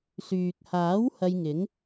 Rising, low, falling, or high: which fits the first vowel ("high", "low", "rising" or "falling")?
low